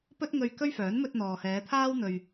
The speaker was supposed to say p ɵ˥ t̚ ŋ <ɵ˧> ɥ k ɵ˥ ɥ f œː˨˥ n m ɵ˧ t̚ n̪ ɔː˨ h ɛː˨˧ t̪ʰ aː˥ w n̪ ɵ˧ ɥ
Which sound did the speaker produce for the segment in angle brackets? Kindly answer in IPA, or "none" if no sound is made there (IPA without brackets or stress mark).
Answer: ɵ˧